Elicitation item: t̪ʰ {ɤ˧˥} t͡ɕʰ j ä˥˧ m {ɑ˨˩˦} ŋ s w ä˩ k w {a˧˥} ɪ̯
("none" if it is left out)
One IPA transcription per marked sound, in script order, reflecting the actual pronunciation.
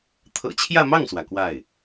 ɤ̰˨˩, ɑ˥˩, a˥˩

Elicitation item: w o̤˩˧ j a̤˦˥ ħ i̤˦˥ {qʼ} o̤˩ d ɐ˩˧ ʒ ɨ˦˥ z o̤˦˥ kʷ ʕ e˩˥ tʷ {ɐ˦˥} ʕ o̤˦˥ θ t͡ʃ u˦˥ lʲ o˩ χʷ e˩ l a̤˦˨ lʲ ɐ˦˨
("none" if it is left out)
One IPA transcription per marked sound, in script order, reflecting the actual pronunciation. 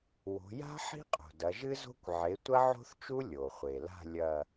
qʼ, ɐ˦˥

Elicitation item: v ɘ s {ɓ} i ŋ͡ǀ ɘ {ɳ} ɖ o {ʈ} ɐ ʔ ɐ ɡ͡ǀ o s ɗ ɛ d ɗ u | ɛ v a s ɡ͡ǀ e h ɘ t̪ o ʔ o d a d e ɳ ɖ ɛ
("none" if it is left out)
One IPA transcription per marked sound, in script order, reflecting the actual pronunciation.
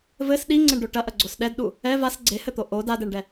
ɗ, ɳ, ʈ

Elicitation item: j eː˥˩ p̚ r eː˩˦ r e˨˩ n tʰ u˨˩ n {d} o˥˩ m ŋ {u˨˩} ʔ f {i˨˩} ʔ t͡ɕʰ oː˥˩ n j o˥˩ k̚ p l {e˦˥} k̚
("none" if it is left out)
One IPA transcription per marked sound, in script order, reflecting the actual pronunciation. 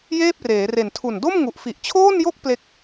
d, u˨˩, i˨˩, e˦˥

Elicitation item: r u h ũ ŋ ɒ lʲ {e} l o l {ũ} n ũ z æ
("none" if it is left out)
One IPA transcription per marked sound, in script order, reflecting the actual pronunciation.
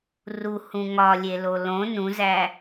e, õ

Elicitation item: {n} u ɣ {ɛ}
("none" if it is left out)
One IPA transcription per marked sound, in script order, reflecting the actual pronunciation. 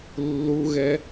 lː, ɛ

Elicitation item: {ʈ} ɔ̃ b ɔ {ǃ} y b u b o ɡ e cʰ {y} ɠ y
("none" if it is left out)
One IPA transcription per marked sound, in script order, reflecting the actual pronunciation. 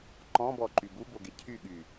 ǃ, ǃ, y

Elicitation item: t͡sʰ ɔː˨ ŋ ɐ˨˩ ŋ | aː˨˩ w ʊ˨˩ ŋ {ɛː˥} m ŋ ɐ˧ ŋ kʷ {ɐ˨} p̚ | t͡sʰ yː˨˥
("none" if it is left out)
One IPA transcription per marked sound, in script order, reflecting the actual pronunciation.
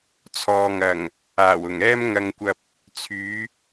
ɛː˥, ɐ˧

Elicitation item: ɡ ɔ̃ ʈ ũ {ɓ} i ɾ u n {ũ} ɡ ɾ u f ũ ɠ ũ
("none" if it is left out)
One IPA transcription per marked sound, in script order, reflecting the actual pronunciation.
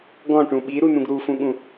ɓ, ũ

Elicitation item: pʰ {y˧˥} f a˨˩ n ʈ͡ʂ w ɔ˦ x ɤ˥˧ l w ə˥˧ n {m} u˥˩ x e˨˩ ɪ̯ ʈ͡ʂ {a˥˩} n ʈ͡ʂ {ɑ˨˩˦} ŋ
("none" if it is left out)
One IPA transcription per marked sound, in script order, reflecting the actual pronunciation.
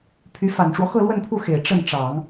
y˧˥, pʰ, ə˥˩, ɑ˨˩˦

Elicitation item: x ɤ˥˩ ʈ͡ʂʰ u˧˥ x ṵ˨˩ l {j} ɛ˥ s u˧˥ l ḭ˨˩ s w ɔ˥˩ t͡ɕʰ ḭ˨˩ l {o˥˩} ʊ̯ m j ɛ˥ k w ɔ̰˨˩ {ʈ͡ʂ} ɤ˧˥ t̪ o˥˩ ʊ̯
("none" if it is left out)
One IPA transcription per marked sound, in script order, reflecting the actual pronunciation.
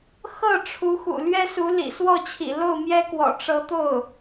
ɥ, o˥˩, ʈ͡ʂ

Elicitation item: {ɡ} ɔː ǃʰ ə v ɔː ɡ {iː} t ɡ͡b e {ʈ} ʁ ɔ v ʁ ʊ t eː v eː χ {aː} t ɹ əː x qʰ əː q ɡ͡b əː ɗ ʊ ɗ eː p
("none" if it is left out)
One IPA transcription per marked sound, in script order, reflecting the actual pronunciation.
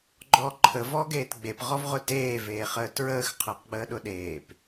ɡ͡ǃ, eː, p, əː

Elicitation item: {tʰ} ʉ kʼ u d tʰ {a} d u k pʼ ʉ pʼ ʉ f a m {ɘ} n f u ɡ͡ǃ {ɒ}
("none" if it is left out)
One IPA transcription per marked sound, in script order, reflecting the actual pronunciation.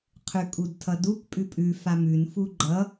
qʰ, ʌ, ʉ, ʌ

